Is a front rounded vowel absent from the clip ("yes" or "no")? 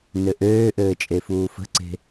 no